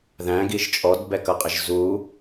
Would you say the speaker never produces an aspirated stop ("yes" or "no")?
yes